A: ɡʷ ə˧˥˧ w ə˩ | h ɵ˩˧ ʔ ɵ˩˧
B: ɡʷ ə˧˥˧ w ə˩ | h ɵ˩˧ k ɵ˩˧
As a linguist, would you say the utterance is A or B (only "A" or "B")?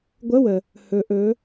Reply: A